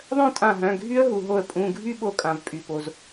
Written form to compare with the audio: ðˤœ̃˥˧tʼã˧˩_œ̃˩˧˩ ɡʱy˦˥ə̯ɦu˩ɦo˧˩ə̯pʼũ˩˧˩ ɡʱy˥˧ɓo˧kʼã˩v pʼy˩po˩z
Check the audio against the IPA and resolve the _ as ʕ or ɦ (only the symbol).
ɦ